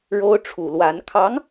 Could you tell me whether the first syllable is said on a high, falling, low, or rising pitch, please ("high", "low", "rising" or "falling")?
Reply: high